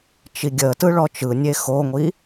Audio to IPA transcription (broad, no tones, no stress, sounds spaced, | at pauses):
t͡ʃ i ɡʲ ə t ɯ ɭ ɔ t͡ʃ ɯ nʲ e x o ŋʷ i